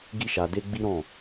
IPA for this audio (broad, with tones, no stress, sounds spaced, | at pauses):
ɡ i˦ ʃ a˧ d e˦ ɡ͡b i˦ ɾ ɔ̃˦˨